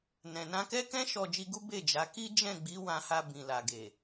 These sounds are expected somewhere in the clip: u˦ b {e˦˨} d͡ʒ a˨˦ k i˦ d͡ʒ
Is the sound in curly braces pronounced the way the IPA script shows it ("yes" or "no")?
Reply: yes